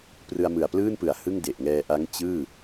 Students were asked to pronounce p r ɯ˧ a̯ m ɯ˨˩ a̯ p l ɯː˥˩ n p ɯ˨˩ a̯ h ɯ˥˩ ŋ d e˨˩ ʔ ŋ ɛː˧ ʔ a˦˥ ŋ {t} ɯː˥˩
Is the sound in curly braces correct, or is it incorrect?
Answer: incorrect: t͡ɕ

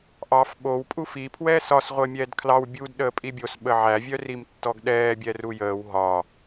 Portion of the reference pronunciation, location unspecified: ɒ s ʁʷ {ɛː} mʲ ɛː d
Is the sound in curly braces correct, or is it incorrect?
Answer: incorrect: əː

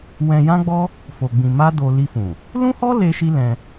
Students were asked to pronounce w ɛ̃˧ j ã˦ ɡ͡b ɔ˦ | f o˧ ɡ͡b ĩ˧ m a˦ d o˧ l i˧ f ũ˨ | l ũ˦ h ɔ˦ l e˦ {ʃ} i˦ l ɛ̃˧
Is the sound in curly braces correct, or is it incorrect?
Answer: correct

